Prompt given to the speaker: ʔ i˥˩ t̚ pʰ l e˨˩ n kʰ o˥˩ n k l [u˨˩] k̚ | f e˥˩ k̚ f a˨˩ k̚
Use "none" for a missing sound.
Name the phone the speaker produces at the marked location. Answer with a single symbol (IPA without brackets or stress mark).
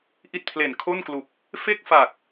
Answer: u˨˩